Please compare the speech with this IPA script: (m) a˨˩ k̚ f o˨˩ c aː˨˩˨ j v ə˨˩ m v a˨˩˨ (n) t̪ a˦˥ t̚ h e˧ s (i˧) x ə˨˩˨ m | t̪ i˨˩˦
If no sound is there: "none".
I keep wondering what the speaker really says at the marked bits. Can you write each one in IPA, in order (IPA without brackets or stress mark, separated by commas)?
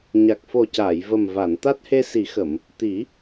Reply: ɲ, n, i˨˩˦